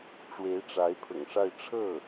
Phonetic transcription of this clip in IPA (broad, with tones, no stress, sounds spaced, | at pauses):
ʈ͡ʂ w e˧˥ ɪ̯ ʈ͡ʂ a˧˥ ɪ̯ pʰ ʊ̰˨˩ ŋ ʂ a˥˧ ɪ̯ ʈ͡ʂʰ ɤ˥˩